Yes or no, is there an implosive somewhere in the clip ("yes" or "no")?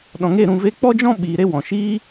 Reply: yes